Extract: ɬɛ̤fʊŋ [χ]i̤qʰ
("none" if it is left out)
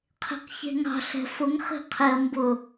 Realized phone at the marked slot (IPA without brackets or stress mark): χ